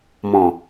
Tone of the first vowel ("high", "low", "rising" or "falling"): low